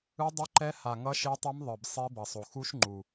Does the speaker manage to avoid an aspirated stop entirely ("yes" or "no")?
yes